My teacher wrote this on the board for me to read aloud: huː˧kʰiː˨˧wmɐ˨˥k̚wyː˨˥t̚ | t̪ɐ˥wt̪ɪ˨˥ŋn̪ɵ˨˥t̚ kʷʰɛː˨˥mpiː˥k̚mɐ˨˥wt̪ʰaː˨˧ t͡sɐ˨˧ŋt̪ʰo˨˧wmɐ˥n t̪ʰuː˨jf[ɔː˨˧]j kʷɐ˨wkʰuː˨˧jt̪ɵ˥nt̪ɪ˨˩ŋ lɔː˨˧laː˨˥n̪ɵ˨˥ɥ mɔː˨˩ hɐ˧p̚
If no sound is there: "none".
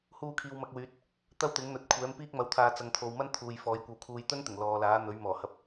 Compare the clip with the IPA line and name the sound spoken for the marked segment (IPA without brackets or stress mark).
ɔː˨˧